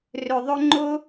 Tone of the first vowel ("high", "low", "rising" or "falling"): low